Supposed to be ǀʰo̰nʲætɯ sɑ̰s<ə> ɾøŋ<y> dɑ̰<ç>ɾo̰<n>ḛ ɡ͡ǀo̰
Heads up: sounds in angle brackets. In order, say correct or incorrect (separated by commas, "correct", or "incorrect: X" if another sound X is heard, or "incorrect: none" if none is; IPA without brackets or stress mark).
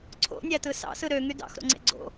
incorrect: ɯ, correct, incorrect: x, incorrect: ŋ͡ǀ